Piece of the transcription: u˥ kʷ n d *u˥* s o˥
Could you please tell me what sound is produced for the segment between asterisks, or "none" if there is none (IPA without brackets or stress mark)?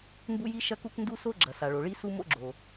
u˥